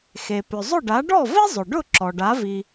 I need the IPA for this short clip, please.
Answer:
x e˩ p ʏ˩ zˤ ʊ˥˩ ɖ a˩˥ ɖ ɔ˥˩ v i˥ zˤ ʏ˩ ɖ ʊ˥˩ ǁ ɔ˩ ɖ a˩˥ v i˩

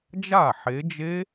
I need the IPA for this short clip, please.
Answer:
d͡ʒ a˥˩ ħ e˨˦ d͡ʒ e˦˥

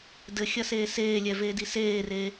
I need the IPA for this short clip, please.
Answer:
d ɘ xʲ ɐ s eː s eː lʲ ɛ v eː d i s eː r eː

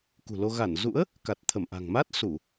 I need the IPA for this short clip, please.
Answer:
k ṳ˨˩ l o˧ ɣ a˧˩ n z ṵ˧˥ ə̯ | k a˨˩ t̚ t̪ʰ ə˧˩ m ʔ a̤˨˩ ŋ m a˦˥ t̚ s u˧˩˨

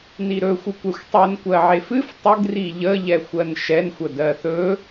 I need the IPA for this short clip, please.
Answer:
n i ɾ ɵ xʷ ɨ kʷ ɛ xʷ tˤ ɨ n kʷ ɜ ʕ e f ɨ f tˤ ə ɡ r i ʎ ə ʎ ɛ xʷ ɜ n ʃ ɛ n xʷ ə d ɜ θ ɵ

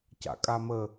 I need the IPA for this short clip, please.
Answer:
c a̰ kʼ a m ə

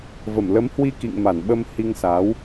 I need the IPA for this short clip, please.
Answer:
v ə˧˩ m l ə˨˦ m h w i˧ k ḭ˧˨ ŋ m a˧˩ n ɓ ə˧ m h i˧ ŋ s aː˨˦ w

